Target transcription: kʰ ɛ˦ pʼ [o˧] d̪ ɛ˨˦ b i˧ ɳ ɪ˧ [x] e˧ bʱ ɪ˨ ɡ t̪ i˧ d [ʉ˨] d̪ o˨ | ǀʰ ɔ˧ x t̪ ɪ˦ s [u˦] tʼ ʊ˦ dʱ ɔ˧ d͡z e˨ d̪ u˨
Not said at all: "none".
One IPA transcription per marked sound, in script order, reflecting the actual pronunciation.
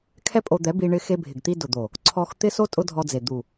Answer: o˧, x, ʊ˨, o˦

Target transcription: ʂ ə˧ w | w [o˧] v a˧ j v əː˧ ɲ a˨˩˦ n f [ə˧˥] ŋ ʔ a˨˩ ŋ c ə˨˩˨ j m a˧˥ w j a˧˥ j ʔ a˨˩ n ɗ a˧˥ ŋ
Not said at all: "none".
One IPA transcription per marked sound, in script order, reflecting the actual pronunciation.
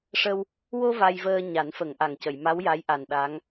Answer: o˧, ə˨˩˦

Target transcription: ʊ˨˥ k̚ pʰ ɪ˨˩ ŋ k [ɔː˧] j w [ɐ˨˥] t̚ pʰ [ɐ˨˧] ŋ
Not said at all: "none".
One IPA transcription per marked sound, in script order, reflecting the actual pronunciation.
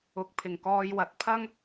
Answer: ɔː˧, ɐ˨˥, ɐ˥

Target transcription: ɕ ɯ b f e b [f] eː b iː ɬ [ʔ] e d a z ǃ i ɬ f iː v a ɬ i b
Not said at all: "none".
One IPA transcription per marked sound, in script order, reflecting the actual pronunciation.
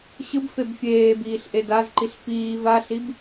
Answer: fʲ, ʔ

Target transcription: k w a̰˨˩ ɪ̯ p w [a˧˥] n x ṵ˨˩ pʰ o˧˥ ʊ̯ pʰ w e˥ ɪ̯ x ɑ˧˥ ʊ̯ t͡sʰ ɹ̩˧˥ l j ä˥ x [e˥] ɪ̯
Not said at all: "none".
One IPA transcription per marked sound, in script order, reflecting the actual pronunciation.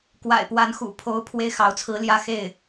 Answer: a˧˥, e˥˩

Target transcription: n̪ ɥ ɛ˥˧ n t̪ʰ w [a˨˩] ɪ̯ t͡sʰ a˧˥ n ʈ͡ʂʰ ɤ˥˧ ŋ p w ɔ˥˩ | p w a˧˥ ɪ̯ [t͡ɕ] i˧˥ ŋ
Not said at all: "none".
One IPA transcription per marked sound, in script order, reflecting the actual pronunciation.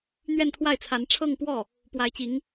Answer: a˥˩, t͡ɕ

